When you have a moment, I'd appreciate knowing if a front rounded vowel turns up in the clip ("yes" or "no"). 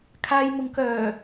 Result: yes